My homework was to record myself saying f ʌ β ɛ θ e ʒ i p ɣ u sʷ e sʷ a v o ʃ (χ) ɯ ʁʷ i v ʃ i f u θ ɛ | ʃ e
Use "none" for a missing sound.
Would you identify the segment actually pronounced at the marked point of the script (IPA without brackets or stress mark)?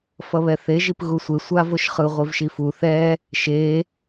χ